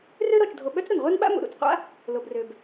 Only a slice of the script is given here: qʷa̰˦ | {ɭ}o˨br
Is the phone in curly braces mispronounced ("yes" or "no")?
yes